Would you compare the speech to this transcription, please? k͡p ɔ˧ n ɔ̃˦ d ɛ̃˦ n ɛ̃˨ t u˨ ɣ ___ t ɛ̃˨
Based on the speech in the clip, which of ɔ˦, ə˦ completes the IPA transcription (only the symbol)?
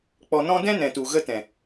ə˦